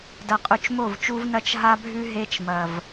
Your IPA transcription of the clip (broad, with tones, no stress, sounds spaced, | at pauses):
d ɐ˨ qʼ ʉ˨ t͡ʃ m o˦˨ v t͡ʃ u˦ v n ɐ˦ t͡ʃ ɦ a˦ bʱ ʉ˦ ɦ e˦ t͡ʃ m ɐ˨ v